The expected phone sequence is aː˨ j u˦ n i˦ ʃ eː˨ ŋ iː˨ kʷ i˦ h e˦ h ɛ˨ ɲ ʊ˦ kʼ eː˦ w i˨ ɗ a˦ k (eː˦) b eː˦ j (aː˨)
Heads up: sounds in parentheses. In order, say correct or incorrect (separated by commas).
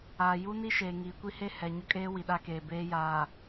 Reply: incorrect, correct